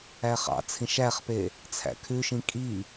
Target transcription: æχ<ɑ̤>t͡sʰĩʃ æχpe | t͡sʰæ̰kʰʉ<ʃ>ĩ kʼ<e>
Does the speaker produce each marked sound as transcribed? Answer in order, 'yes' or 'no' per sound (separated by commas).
no, yes, no